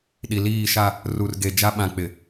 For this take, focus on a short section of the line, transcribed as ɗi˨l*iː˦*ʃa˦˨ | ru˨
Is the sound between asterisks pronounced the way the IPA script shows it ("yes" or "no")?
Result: no